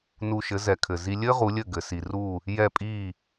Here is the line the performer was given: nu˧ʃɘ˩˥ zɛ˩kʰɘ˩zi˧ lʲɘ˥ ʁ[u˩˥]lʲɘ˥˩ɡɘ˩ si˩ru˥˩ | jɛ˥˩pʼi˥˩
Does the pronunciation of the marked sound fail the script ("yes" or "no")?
no